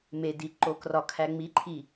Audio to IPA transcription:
m e d i ǃ o k r ɒ kʰ æ ŋ͡m i ǃʰ i

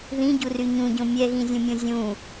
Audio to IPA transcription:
ð ĩ ɟ u r y ɲ ũ ɟ õ mʲ ɛ ɣ ĩ zʲ ũ mʲ õ zʲ ũ

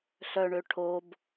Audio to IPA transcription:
ɬ œ ɳ ø ʈʰ o b

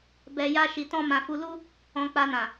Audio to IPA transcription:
b ɛ˧ j a˦ ʃ i˧ t ɔ̃˦ m ã˧ f u˧ l u˦ | ɔ̃˧ k͡p a˧ n ã˨

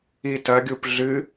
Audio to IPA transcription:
i t ɐ ɡʲ u p ɮ ɨ

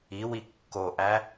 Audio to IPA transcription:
i w i kː o ʔ æ

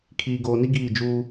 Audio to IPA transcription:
kʰ iː˨ ɡ oː˨ n i˦ ɡ iː˦˨ d͡ʒ uː˦

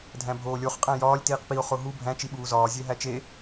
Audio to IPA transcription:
dʱ æ̃ bʱ oː lʲ o χ qʼ æ̃ j ɒː lʲ t iː q p i o̯ χ o ɦ u bʱ æ̃ t͡ʃ i ɓ uː z ɒː zʲ e ɦ æ t͡ʃ e

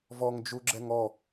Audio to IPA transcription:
v ɔ ŋ d͡ʒ u ɡ͡ǁ ɛ ŋ ɔ

